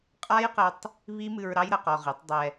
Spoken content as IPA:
qʼ a˦ j q ɘ˧ tˤ | β i˦ m ɨ˧ ɹ ɾ ɑ˦ j ɾ ə˧ q ɔ˧ ʁ i˨˦ tˤ dˤ ɛ˧

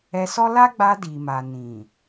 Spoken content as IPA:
ɛ˧ s ɔ˦ l a˦ ɡ͡b a˧ d i˨ m a˨ n ĩ˨

